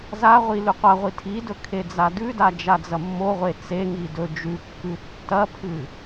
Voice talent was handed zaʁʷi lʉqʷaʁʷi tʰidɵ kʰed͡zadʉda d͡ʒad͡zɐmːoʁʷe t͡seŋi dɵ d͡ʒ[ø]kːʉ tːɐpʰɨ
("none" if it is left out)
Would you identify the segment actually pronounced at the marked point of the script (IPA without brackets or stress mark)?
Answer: ʉ